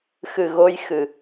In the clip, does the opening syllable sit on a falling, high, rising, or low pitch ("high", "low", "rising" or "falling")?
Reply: low